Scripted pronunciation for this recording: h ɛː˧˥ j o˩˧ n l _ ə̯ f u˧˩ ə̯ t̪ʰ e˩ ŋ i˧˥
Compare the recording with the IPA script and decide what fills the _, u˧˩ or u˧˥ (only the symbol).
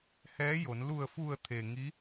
u˧˩